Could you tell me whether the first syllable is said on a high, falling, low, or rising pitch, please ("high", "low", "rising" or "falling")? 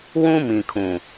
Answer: high